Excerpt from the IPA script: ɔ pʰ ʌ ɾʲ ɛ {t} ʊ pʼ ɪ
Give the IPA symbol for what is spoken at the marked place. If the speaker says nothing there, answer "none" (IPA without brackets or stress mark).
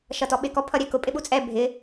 k